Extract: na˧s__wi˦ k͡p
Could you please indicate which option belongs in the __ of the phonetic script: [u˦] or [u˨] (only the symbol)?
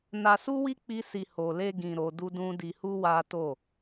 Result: u˦